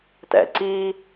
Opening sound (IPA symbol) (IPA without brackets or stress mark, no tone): t